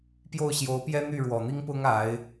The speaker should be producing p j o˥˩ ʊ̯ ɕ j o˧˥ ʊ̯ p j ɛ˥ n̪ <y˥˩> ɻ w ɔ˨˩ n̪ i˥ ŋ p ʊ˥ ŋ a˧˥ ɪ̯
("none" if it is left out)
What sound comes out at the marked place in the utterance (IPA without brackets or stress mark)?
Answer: y˥˩